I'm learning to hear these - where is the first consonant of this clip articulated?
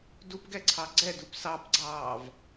tongue tip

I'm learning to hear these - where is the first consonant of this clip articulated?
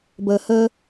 lips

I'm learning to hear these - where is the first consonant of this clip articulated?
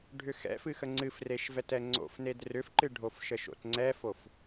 retroflex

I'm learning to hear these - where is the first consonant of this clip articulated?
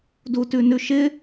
tongue tip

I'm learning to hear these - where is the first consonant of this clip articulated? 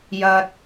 palate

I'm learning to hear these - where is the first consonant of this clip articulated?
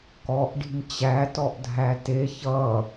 velum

